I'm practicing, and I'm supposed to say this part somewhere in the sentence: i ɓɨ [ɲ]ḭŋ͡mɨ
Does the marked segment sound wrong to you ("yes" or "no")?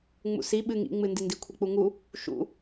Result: yes